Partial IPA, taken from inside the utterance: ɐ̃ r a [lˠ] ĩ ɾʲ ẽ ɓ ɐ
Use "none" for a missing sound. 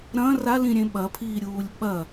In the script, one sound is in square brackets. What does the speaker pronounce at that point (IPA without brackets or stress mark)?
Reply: l